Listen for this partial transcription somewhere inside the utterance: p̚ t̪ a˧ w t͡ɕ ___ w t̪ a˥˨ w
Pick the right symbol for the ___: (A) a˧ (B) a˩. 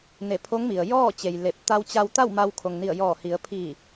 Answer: A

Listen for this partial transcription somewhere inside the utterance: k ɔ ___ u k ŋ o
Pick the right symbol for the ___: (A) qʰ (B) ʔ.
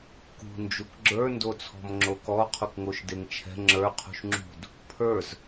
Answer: A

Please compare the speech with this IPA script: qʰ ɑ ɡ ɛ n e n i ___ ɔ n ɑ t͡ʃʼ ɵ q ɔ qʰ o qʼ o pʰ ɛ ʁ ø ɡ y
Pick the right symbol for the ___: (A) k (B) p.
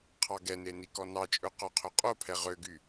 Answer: A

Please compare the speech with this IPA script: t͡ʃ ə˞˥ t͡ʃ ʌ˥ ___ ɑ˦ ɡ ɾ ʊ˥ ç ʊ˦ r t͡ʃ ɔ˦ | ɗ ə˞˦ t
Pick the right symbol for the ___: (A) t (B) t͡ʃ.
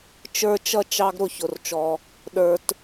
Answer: B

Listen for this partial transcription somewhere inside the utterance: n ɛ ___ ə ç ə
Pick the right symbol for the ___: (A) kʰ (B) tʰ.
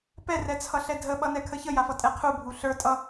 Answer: A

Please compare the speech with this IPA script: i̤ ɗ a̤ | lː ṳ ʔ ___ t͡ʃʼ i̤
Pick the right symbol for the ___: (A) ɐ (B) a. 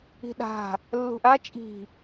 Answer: B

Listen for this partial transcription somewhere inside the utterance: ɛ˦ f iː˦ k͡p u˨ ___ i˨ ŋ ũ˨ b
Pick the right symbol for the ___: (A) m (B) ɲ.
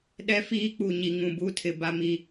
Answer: B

